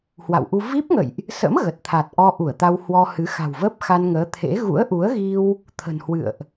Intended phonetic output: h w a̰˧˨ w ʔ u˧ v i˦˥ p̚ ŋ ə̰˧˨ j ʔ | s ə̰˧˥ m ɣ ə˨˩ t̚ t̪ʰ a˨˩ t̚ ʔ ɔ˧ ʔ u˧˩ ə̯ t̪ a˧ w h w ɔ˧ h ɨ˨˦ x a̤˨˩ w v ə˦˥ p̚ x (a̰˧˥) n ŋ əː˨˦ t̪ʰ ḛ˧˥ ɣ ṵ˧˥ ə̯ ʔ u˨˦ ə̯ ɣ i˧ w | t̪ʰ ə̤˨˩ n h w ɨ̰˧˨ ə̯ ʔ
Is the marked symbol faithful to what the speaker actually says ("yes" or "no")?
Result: no